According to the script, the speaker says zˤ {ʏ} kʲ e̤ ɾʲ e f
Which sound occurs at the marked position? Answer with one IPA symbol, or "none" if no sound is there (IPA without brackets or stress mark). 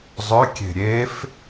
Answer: ʏ